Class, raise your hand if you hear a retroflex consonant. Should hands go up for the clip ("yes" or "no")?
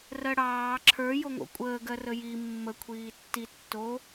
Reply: yes